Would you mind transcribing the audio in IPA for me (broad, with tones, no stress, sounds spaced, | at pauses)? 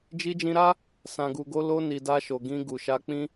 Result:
d͡ʒ i˧ d͡ʒ ĩ˧ ɾ a˦ | s ã˨ ɡ u˨ ɡ o˧ l o˧ n i˨ d a˧ ʃ o˨ ɡ ĩ˧ ɡ u˨ ʃ a˧ k͡p ĩ˦